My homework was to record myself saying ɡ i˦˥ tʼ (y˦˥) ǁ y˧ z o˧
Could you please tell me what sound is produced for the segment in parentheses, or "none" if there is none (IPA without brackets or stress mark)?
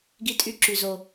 y˦˥